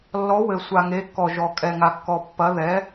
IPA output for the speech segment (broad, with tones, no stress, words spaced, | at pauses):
lːɔ˩˧wɘ˩ sʷa˩ŋe˩˧kːɔ˩ ʒɔ˩ kʼɛ˩ ŋa˩kːɔ˩ pːɐ˩˧ ðɛ˩˧